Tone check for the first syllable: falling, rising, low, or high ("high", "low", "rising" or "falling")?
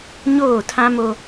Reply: falling